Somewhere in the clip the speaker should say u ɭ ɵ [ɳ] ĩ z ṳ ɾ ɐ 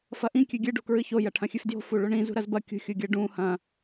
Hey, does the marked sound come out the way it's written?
yes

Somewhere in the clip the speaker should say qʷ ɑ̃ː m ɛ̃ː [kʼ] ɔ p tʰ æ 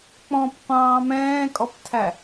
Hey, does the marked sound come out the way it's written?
yes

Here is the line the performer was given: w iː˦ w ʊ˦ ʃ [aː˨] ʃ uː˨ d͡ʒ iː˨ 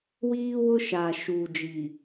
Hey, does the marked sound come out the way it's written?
yes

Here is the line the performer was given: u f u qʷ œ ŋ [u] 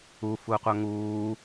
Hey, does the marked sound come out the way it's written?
no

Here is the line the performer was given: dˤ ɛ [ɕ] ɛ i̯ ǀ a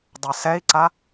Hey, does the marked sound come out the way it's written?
no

